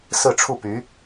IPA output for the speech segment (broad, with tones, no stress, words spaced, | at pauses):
sɹ̩˥˧ʈ͡ʂʰu˥˩py˧˥